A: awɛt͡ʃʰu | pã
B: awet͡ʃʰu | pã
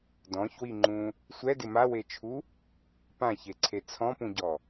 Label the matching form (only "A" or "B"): B